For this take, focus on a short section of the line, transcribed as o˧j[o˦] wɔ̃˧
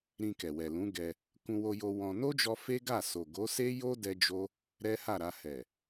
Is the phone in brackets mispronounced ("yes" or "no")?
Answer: yes